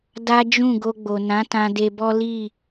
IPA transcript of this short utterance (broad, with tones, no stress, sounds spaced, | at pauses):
d a˦ d͡ʒ ũ˦˨ ɡ o˧ ɡ͡b o˨ n ã˨˦ t ã˧ d e˧ b ɔ˦ l i˦˨